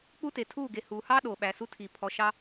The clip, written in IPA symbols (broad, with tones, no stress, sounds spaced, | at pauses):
k͡p u˦ t e˨ tʰ uː˦˨ ɡ e˨ h uː˨ h ɑː˦ ɗ oː˨ ɓ æ˨ s u˦ tʰ i˨ pʰ ɔ˨ ʃ ɑ˦